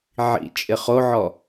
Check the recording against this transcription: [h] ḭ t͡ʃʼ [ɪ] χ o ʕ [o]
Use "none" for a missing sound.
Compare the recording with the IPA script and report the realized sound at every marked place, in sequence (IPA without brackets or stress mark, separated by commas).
ʕ, ɪ, ɔ